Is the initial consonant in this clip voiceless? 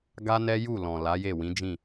no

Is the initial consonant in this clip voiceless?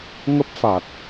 no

